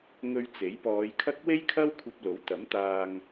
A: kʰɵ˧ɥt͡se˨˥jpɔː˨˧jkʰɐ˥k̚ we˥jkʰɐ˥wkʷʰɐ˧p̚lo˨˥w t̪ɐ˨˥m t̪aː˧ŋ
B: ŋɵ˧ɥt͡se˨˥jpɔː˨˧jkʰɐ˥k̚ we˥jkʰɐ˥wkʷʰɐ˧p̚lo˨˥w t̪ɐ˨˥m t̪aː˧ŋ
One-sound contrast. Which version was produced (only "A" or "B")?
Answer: B